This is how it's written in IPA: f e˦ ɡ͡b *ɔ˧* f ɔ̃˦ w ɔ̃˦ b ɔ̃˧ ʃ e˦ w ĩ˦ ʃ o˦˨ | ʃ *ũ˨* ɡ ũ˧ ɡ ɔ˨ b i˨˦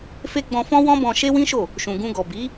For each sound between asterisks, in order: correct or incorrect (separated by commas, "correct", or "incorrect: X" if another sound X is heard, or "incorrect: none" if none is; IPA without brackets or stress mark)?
incorrect: ɔ̃˧, correct